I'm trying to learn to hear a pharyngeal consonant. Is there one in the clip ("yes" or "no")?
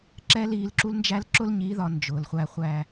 no